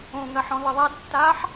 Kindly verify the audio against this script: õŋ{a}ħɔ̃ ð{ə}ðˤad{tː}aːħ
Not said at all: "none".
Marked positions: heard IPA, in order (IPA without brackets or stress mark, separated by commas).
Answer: ɐ, ə, tː